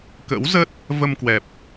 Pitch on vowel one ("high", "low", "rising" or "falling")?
rising